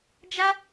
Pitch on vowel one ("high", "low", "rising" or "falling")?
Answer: high